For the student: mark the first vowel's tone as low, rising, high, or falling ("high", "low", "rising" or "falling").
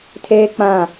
high